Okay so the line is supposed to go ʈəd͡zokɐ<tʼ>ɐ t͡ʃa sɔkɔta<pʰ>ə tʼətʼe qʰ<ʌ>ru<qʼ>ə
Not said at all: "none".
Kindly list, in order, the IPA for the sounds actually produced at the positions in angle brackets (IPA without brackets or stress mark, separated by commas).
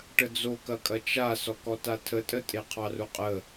kʼ, tʰ, ɑ, qʼ